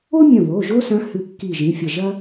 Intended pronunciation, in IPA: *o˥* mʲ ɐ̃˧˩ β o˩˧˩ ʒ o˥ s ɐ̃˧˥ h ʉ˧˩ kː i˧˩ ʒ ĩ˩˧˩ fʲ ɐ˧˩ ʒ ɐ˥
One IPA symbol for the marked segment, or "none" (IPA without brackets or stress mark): o˥